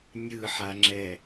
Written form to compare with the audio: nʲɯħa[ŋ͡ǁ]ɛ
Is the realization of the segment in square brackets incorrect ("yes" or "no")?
no